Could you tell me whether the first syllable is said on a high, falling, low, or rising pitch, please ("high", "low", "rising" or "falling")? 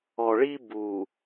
low